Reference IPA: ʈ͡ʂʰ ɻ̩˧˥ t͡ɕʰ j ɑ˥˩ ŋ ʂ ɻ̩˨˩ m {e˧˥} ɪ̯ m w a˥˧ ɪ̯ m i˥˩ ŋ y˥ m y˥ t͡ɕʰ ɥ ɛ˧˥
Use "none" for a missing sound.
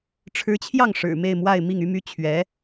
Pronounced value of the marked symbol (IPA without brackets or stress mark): e˥˧